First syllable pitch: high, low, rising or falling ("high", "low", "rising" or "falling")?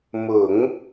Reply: low